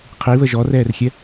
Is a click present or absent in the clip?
absent